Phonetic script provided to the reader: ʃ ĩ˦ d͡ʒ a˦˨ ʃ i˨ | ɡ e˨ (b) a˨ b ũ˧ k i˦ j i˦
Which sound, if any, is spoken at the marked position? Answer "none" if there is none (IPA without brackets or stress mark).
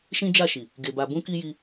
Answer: b